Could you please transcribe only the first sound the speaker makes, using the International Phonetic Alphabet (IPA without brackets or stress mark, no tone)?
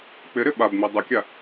k͡p